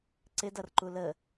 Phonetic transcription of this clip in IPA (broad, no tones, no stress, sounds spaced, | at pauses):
ǀ ɪ d ʌ r ǃ u l ə